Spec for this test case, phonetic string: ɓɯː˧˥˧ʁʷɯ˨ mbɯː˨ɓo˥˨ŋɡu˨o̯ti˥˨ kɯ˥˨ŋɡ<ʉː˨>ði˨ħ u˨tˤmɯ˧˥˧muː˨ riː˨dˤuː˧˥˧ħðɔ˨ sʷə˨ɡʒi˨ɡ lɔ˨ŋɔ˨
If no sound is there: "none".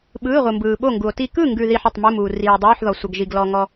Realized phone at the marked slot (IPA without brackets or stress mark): ʉ˨